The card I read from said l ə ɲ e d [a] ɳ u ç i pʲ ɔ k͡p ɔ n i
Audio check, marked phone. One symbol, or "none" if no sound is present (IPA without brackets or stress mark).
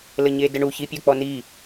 ə